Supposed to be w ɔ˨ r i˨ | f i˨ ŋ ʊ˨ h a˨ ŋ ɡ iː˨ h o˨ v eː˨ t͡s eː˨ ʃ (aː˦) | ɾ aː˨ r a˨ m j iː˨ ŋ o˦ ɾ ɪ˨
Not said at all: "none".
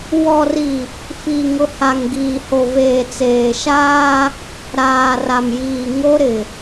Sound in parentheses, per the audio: aː˦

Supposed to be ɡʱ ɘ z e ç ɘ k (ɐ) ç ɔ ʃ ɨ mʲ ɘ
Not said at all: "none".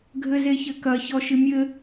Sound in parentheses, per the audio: ɐ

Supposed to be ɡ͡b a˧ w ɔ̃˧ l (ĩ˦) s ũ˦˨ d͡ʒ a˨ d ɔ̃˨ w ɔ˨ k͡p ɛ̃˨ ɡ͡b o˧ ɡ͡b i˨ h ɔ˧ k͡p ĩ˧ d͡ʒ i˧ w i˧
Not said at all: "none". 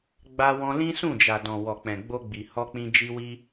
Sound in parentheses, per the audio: ĩ˦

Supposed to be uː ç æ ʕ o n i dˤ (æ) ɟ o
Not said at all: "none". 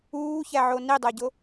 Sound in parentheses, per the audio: æ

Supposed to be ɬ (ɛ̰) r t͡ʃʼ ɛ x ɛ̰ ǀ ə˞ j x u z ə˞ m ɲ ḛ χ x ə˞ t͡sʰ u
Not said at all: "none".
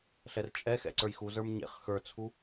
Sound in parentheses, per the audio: ɛ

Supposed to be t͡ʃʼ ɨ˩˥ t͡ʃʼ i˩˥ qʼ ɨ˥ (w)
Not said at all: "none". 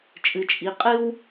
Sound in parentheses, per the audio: w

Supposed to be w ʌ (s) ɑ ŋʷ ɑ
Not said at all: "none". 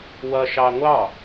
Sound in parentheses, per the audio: ʃ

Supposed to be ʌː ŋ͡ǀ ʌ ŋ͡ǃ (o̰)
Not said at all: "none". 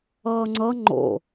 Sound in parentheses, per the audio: o̰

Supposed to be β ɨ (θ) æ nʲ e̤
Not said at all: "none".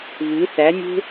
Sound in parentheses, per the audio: θ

